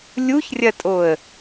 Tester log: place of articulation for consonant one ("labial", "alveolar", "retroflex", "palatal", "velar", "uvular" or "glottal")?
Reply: alveolar